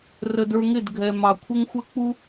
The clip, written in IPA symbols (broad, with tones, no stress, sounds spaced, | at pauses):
r ə˧ d ə˞˧ ŋ ɪ˦˨ d ɡʱ ɛ˨ m ɑ˨ kʷʰ ɪ˦ ŋ xʷ ə˦ k͡p u˦